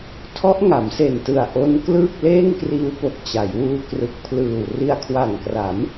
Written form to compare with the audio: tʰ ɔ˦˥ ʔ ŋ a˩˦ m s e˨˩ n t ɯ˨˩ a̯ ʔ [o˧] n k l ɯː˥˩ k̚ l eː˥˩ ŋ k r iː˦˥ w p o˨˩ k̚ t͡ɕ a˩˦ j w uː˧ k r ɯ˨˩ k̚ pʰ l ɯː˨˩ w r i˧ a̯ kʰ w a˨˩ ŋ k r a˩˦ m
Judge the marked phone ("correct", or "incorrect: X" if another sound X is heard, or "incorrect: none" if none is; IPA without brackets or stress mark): incorrect: o˦˥